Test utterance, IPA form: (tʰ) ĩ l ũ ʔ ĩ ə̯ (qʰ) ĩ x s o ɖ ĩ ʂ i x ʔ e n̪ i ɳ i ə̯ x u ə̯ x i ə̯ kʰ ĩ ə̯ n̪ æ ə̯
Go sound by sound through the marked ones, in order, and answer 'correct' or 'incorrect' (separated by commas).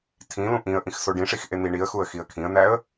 correct, incorrect